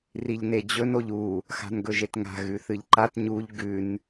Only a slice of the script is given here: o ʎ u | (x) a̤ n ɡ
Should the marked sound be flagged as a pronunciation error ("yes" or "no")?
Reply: no